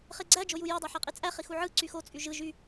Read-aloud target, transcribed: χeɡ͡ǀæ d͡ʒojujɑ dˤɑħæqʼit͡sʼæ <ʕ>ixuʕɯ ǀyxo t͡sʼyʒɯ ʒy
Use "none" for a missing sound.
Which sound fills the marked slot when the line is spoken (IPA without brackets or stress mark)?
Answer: χ